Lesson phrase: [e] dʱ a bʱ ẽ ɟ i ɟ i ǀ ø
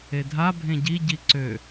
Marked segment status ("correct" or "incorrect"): correct